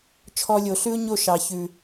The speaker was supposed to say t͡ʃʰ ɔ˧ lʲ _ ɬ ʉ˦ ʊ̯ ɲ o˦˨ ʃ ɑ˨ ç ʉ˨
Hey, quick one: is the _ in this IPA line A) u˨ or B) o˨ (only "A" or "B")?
B